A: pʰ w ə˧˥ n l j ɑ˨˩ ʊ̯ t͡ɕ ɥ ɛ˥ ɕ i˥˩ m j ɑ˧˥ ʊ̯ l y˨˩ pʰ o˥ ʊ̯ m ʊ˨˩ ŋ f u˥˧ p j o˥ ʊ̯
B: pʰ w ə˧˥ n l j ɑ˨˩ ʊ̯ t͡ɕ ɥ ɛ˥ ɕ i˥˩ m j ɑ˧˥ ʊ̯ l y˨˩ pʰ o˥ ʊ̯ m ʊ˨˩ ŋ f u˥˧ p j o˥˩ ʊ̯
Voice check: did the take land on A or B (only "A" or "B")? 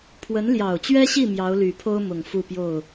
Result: B